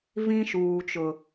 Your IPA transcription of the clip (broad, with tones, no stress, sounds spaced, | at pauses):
v ĩ˦ ʃ uː˨ t͡ʃ ʊ˨